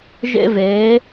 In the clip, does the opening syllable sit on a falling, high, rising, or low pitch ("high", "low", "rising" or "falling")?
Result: high